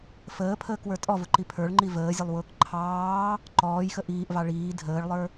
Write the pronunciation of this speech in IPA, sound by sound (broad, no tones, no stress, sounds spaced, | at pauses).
f əː pʰ əː k w ə˞ tʼ ɔ v ʊ ǃ i pʰ ə˞ ɭ ŋ͡ǃ i v əː zʲ ʊ lˠ w ʊː k ǃʰ ɑː | ǃ ɔː j x ə ʔ iː ʔ v ɑ ɭ iː dʱ əː ɭ lˠ ə˞